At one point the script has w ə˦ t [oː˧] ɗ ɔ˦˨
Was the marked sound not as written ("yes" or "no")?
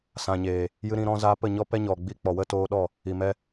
no